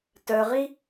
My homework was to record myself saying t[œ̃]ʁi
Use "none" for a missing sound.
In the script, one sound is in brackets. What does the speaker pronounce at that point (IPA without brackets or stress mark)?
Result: œ